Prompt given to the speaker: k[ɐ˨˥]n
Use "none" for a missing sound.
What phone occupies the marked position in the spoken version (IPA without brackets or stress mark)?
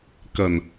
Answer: ɐ˨˩